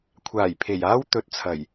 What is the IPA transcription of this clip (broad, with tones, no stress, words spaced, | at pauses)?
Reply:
kʷʰaː˨˩j pʰe˨˩jaː˥wt̪ɵ˨˥t̚t͡sʰɐ˨˩j